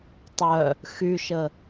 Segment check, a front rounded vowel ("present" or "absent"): present